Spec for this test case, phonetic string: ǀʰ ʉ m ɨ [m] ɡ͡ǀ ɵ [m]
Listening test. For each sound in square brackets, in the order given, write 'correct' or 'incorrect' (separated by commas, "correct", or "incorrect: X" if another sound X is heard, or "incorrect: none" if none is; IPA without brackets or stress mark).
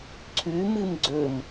correct, correct